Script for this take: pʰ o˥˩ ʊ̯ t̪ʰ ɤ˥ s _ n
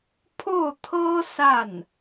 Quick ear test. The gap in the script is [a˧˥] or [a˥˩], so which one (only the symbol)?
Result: a˥˩